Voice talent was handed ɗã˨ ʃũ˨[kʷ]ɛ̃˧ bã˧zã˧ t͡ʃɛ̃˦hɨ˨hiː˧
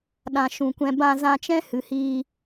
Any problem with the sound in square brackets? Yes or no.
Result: no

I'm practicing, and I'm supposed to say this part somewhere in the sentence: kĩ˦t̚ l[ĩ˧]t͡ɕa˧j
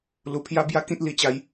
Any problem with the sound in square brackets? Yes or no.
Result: yes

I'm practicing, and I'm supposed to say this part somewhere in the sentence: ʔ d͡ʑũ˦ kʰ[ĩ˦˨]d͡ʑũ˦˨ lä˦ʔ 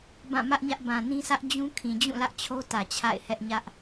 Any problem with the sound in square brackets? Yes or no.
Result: yes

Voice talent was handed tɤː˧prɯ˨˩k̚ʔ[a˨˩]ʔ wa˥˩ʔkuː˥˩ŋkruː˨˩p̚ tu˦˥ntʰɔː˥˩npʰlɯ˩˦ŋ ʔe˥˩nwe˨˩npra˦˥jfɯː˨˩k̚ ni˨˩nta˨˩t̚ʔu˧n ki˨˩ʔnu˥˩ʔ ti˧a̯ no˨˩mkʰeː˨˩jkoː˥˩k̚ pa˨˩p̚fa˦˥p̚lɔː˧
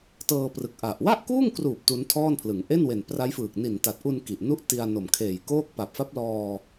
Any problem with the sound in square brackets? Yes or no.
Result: no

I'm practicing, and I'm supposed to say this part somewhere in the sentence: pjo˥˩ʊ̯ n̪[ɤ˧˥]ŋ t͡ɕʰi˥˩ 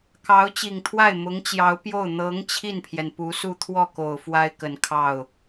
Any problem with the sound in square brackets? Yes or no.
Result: no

